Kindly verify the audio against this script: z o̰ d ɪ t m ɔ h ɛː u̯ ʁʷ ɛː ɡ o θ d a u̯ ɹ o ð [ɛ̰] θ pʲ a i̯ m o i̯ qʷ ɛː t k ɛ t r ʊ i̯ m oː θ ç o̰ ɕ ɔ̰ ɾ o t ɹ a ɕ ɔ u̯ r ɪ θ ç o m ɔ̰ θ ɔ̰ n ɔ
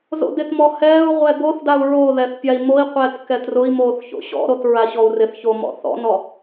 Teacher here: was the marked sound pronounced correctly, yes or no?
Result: no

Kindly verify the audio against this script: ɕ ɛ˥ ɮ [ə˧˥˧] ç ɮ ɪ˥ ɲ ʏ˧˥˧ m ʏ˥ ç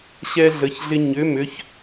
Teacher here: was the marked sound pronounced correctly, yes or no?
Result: yes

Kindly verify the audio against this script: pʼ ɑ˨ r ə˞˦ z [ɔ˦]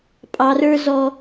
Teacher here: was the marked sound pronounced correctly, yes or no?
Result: yes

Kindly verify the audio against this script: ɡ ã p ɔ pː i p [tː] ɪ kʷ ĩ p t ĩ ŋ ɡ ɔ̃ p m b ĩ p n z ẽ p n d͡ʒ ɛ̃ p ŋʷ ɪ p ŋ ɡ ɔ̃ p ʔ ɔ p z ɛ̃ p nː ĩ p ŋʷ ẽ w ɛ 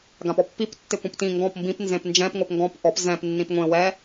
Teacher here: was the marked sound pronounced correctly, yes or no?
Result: yes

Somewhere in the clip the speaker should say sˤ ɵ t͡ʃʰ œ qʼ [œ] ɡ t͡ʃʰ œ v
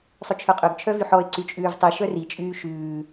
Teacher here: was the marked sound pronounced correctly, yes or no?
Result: no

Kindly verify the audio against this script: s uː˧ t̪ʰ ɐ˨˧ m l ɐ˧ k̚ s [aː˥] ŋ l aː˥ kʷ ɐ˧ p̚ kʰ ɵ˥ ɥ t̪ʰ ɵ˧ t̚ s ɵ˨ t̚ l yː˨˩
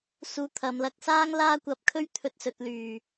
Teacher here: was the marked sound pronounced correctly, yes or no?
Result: yes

